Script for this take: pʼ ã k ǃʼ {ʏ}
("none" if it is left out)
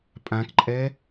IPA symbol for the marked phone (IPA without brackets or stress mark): ɛ